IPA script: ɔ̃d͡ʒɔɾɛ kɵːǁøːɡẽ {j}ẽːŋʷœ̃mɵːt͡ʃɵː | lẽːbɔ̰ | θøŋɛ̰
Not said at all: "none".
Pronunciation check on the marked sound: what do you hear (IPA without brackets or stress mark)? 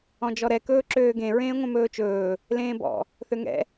ɹ